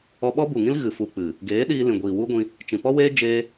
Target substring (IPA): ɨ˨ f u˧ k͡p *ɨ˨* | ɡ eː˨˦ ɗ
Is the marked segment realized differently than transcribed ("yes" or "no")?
no